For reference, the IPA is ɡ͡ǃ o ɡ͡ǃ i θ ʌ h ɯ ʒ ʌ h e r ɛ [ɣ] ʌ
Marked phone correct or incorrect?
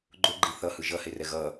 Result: correct